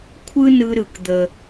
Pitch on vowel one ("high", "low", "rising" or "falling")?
high